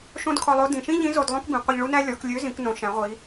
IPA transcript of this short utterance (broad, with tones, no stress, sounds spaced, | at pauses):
ʃ õ˥ d kʰ ɔ˧ lˠ o˧˥ d ĩ˩ ʃ ĩ˥ ʎ ĩ˧˥ z o˧ d lˠ õ˥ k b ĩ˩˧ qʷ e˧ ʎ ɭ u˥ n æ˥ lʲ ɔ˩˧ k lʲ ø˧˥ z ĩ˩˧ k n õ˩˧ ʃ æ̃˩˧ ʁʷ i˩˧